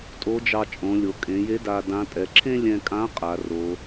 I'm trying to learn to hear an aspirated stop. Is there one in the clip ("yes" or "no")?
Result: yes